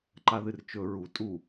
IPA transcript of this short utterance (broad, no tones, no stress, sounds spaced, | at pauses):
ǃ a ð ɨ r t͡ʃ ɵ ɹ u tʼ u